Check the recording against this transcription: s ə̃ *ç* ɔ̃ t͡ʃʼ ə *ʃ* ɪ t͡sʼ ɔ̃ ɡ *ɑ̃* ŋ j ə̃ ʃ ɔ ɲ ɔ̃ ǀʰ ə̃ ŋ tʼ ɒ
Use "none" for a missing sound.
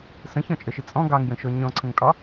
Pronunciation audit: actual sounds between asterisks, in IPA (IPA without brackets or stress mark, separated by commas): ç, ʃ, ɑ